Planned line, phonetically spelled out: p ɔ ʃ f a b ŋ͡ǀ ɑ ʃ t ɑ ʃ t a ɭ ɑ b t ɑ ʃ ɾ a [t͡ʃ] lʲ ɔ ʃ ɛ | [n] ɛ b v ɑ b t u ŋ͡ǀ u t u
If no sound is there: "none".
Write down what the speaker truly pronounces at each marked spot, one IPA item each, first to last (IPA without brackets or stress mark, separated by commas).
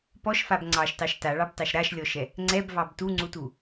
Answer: ʃ, ŋ͡ǀ